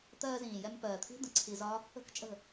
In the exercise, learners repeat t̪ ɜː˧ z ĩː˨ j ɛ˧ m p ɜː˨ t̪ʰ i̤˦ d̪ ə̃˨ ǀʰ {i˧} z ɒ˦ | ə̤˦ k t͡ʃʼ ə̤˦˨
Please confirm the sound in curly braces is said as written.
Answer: yes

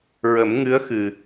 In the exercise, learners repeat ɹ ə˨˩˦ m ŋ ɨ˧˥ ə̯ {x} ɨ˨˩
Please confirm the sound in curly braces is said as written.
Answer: yes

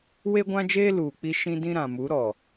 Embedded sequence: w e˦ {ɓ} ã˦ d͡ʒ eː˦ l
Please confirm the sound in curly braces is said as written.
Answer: no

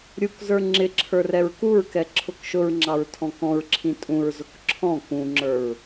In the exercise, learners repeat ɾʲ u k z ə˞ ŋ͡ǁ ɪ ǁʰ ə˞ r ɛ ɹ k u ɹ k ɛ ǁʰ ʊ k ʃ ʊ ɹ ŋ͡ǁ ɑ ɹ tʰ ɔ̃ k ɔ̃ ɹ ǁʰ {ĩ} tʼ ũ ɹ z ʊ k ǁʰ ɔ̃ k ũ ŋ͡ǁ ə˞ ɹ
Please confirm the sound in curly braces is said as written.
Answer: yes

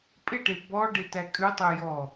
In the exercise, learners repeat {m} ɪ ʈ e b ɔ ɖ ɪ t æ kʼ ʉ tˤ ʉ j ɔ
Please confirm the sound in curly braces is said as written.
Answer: no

